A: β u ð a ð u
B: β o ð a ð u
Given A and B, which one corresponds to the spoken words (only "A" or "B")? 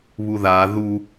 A